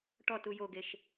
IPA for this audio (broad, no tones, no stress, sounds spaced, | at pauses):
ʈ ɔ t u j o ɡ e ʃ